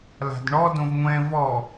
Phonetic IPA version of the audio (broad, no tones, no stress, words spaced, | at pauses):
la̤dɳɔ dõvŋʷɛ̃ vɔ